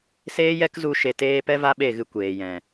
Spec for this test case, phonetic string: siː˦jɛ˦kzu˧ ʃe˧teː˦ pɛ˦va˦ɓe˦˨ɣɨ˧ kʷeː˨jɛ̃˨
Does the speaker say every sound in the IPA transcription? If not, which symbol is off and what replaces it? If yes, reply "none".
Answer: iː˦ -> eː˦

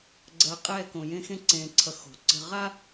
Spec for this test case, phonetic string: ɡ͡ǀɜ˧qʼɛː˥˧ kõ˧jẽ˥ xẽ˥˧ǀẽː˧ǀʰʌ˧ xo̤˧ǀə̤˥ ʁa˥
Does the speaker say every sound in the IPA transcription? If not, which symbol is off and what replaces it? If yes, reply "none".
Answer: none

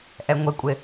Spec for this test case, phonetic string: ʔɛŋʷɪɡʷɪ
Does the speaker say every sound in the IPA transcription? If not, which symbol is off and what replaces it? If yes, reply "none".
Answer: ɡʷ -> kʷʼ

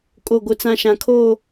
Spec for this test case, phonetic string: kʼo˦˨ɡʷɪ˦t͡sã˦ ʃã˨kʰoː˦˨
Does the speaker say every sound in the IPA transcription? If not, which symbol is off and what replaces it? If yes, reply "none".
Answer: none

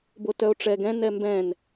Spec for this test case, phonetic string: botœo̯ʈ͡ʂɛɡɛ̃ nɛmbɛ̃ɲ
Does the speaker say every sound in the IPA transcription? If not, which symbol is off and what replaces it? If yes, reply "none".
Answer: ɲ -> n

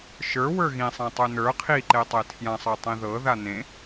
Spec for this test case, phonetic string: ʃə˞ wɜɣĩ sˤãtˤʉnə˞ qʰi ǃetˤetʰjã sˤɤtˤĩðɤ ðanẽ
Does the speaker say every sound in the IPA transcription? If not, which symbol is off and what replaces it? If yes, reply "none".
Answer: ɜ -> ə˞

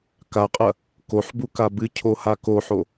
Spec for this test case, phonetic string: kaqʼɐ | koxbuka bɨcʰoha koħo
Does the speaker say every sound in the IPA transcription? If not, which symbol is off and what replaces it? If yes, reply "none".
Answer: x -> ħ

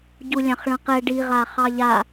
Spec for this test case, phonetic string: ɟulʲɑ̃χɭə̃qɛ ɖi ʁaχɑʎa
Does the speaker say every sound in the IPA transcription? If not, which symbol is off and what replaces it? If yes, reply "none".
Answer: none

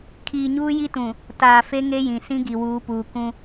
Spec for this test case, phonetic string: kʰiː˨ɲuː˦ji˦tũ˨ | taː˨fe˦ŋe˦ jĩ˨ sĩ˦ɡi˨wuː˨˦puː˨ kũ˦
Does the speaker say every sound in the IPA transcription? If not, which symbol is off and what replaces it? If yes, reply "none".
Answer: none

